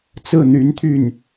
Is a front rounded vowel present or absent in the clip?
present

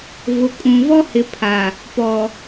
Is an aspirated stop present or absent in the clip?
present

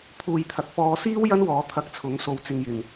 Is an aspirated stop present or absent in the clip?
present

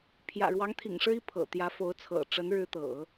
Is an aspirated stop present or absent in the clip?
present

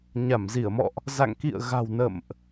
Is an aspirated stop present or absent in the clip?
absent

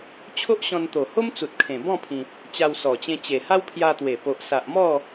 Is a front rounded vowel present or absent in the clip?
absent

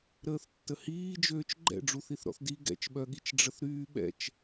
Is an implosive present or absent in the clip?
present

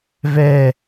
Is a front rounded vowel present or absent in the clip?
absent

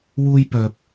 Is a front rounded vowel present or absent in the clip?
present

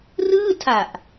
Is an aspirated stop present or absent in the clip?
present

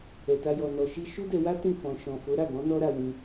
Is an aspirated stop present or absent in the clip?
absent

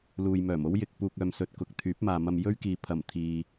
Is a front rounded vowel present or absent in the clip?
present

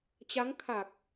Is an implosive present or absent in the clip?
absent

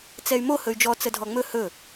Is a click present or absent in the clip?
absent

